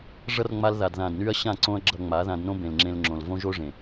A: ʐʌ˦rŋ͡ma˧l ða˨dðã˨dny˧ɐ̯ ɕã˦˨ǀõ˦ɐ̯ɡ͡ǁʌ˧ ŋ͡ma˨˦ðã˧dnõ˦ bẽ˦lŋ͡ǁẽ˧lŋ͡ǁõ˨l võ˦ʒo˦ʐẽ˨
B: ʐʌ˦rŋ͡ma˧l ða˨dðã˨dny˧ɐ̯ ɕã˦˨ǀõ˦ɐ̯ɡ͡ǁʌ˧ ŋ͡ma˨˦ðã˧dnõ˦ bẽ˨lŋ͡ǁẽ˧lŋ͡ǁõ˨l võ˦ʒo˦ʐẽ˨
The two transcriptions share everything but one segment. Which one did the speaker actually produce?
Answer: B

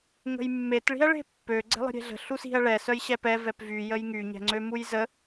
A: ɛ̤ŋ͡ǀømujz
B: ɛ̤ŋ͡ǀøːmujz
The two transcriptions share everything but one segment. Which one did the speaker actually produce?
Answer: A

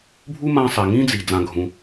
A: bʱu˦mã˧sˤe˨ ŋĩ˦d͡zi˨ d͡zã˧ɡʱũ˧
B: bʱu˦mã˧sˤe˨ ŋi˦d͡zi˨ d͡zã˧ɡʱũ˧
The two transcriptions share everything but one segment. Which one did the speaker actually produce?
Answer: A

